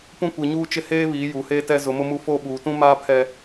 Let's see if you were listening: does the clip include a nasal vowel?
yes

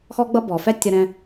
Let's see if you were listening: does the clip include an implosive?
no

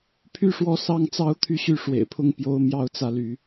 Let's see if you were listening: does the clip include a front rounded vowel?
yes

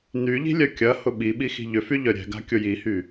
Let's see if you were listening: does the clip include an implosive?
yes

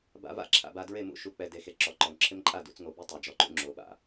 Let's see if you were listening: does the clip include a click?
yes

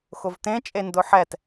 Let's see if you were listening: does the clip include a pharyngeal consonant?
yes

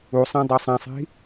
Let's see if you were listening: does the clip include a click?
no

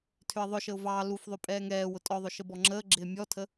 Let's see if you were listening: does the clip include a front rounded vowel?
yes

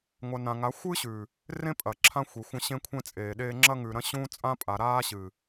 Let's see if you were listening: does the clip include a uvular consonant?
no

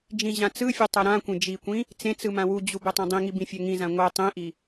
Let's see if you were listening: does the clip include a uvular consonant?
no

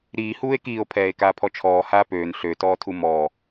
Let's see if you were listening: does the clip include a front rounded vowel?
yes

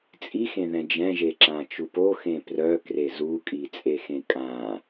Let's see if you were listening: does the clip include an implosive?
no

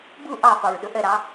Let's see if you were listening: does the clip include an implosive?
yes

